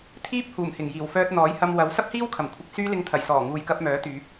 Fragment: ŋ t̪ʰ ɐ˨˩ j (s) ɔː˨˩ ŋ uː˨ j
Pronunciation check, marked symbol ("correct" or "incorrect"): correct